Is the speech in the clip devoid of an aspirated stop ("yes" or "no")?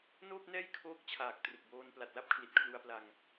no